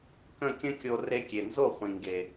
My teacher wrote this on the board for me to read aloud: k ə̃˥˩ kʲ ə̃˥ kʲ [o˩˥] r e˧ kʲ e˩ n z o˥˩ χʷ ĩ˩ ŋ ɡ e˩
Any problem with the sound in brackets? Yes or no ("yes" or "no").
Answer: yes